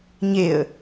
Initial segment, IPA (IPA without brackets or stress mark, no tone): ɲ